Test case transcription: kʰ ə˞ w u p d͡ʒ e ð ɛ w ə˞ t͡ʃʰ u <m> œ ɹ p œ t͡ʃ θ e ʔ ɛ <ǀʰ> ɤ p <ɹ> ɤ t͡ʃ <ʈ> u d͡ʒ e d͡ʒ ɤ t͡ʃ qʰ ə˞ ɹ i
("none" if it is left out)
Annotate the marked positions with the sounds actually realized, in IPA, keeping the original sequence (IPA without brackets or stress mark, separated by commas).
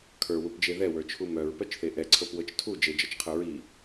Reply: m, ǀʰ, w, tʰ